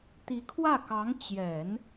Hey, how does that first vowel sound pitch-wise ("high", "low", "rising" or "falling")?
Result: rising